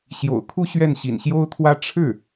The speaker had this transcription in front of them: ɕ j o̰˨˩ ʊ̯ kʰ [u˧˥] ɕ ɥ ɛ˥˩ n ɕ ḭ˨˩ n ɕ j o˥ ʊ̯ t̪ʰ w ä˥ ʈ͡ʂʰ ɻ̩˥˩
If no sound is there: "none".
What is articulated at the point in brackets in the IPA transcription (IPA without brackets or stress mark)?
u˥˧